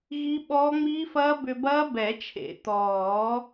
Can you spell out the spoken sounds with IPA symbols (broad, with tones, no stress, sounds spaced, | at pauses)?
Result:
ɣ i˦˥ ɓ ɔː˦˥ ŋ͡m iː˦˥ f ɐː˦˥ b ʏ˧ b ɐː˦˥ b ɛ˨˩˦ t͡ʃʰ ḛ˨˩˦ t̪ ɔː˨˩˦